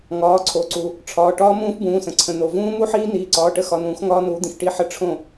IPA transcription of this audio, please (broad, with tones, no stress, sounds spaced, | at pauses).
ŋ ɒː˩˧˩ ǀʰ o˩˧˩ ǀ u˩ | ʈ͡ʂʰ ɒː˩˧˩ ʈ ɒː˦˥ m ũː˦˥ f b ũː˩˧˩ s ə̃˩ ǀʰ ə̃˩ n̪ o˩ v ũː˦˥ m u˦˥ ħ iː˦˥ n̪ iː˩˧˩ ǀ ɒː˩˧˩ ʈ ə˦˥ x ɒ˩˧˩ n ũː˨˩˦ x ŋ ɒː˦˥ n uː˨˥ d̪ ĩ˩ x ʈ i˥˩ ħ ə˦˥ ʈ͡ʂʰ õ˥˩